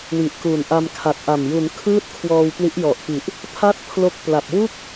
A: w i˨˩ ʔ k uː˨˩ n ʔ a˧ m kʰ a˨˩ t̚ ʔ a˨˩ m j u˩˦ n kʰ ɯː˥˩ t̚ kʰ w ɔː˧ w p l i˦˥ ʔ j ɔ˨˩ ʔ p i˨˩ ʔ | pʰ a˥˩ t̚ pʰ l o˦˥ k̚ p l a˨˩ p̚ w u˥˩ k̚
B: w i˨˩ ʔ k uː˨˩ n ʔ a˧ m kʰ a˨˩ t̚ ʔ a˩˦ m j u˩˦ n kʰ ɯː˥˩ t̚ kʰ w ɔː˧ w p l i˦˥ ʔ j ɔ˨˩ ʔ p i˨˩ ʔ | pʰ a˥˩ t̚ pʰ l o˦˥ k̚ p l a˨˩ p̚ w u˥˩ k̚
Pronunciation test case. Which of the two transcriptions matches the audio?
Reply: A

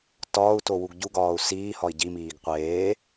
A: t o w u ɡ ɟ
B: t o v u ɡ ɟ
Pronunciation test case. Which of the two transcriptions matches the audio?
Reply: A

